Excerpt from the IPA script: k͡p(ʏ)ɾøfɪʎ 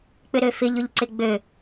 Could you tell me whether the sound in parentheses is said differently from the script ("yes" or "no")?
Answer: no